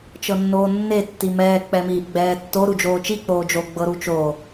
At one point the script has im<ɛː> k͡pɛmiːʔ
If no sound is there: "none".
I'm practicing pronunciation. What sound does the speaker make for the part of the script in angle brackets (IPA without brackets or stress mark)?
ɛː